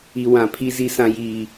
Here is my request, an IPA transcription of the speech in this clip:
i˦ w ã˦ pʰ i˦ z i˦ s ã˦ j iː˦

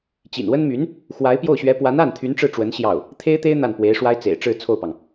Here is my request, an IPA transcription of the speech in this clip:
t͡ɕ ḭ˨˩ n w ə˥ n m y˧˥ n | x w a˧˥ ɪ̯ p j o˥˩ ʊ̯ ɕ ɥ ɛ˧˥ p w a˧˥ n a˥˩ n t̪ʰ y˧˥ n ʈ͡ʂ ɻ̩˥˩ ʈ͡ʂ w ə˧˥ n ɕ j ɑ˥˩ ʊ̯ | t̪ʰ e˥ ɪ̯ t̪ e˥ ɪ̯ n̪ a˥˩ n p w e˧˥ ɪ̯ ʂ w a˥ ɪ̯ t͡s ḛ˨˩ ɪ̯ ʈ͡ʂ ɻ̩˥˧ t͡sʰ o˥˩ ʊ̯ p ɑ˩ ŋ

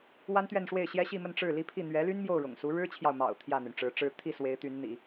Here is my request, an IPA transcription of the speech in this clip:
w a˥ n t̪ ɥ ɛ˥˧ n ʂ w e˥˩ ɪ̯ ɕ j ɛ˥ ɕ i˥˧ m ə˥˧ n ʈ͡ʂ ɻ̩˥˩ l i˥ pʰ i˥˩ n̪ ɥ ɛ˧˥ l y˥ n m j o˥˩ ʊ̯ ɻ ʊ̰˨˩ ŋ s u˧˥ ɻ ɻ̩˥ t͡ɕʰ j ɑ˨ ʊ̯ m ɑ̰˨˩ ʊ̯ t̪ʰ j ä˥˩ n̪ y˩ n ʈ͡ʂ ɻ̩˧˥ ʈ͡ʂ ɻ̩˥ t̪ʰ i˥˩ s w e˧˥ ɪ̯ t̪ y˧˥ n n̪ ḭ˨˩˦

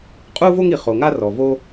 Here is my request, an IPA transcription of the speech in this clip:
qʼ uː˥ v o˥ ŋ i˩ χ o˩ ŋ a˥ r ɔ˩ v o˧

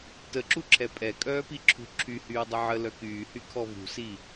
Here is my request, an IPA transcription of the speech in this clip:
t ə ǁ u ǁʰ ɛ pʼ ɛ kʼ œː p i ǁʰ ṳ ǁʰ y h yː dˤ ə ʕ ə l œ k yː h y kʰ ɔ v ṳ s i

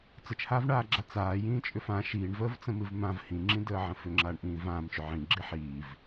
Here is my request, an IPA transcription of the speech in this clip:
t͡s ə t͡ʃ h aː v ɳ aː ɡ͡ǁ a t͡s aː j ĩː t͡ʃʼ ʏ f ã ʃ iː ɳ v əː v t͡s ə̃ m ɨ v m ã v h ĩ ŋ͡ǁ ĩ d əː ʕ ə̃ f ʏ ŋ͡ǁ aː ɳ ʔ ĩː v ãː m t͡ʃ ʏ ʕ ĩ ɡ͡ǁ i ħ iː v

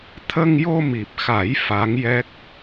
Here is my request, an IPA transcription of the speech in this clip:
t̪ʰ ə˧ ŋ j o˧ m i˨˩ p̚ x a˨˩˦ j f a˧˥ ŋ j ɛ˦˥ k̚

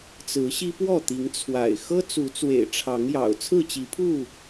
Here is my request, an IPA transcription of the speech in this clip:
t͡s ɹ̩˨˦ ɕ i˦ p w ɔ˥˨ t̪ i˨˦ ŋ t͡sʰ w a̰˨˩ ɪ̯ x ɤ˦ t͡s u˨˦ t͡s w ḛ˨˩ ɪ̯ ʈ͡ʂʰ ɑ˨˦ ŋ j ɑ̰˨˩ ʊ̯ t͡sʰ ɹ̩˥˨ t͡ɕ i˨˦ pʰ u˥˨

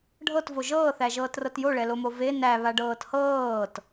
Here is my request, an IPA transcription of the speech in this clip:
ɖʱ ɤ t v o ʒ ɤː θ æ ʒ ɤː t r ɤ t j o ɭ ɛ l o m o v e n æ β a ɖ ɤː t h ɤː t

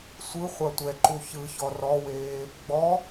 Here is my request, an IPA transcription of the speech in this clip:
sʷ ɯ χʷ a tʷ ɛ ǃ u ç ɯ ç ɔ r ɔ w eː | ɡ͡b ɔ

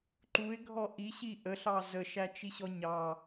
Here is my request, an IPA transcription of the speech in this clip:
ǃ u ɪ̯ ɡʱ ɔ ʔ i ɕ i ʔ ə ɬ ɑ z ə ʃ æ t͡ʃ i ɕ ɔ ɲ ɑ

